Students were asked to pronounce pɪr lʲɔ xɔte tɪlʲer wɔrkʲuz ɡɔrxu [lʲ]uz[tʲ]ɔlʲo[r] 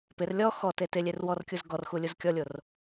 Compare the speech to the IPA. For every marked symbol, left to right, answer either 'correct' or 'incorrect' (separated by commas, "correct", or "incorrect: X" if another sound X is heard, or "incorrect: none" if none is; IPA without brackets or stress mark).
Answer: correct, incorrect: kʲ, correct